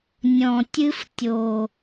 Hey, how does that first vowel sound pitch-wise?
low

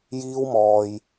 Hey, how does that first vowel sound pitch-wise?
high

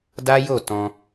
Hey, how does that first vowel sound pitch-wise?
high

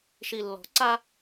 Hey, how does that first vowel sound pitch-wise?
low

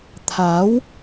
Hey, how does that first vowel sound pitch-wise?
rising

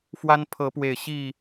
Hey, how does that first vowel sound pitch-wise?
high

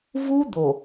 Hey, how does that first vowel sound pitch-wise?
high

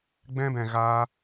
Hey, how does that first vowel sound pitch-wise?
high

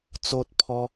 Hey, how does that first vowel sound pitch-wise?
high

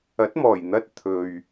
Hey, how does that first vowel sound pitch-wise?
rising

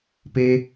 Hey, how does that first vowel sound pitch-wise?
high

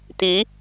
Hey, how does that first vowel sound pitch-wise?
rising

